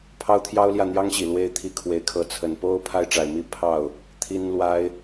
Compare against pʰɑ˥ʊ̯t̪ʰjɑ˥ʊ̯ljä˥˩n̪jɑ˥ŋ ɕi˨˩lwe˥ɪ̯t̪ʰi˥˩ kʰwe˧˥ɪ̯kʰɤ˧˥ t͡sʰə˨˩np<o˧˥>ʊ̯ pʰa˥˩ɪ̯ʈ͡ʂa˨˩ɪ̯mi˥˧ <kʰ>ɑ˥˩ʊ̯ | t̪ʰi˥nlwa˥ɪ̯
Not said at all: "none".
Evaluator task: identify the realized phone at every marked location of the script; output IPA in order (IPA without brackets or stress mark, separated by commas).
o˥, pʰ